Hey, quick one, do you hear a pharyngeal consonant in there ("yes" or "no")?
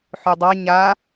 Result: yes